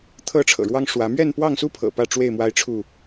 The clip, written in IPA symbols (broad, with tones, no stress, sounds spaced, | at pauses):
t̪ʰ ɤ˥˨ ʈ͡ʂʰ ɤ̰˨˩ ɻ w ɑ˦ ŋ ʂ w ä˨˦ m ɥ ɛ˥˨ n p w ɑ˥˨ ŋ s u˦ pʰ ɤ̰˨˩ p ä˥˨ ʈ͡ʂ w e˥˨ ɪ̯ m w a˦ ɪ̯ ʈ͡ʂʰ u˥˨